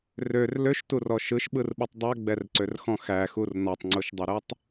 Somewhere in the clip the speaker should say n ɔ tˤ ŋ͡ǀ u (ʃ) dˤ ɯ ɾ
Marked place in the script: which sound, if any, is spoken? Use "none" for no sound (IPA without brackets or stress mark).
ʃ